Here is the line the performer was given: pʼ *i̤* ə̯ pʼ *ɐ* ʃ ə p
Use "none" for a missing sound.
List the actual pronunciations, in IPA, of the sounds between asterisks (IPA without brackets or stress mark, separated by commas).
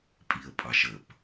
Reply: i, ɑ